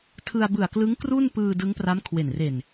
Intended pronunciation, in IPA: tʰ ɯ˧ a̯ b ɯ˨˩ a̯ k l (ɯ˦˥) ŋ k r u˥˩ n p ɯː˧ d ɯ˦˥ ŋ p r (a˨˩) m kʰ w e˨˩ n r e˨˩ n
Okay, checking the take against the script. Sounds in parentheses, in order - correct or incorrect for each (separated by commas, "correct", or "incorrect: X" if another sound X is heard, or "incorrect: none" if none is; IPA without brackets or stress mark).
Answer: correct, incorrect: a˦˥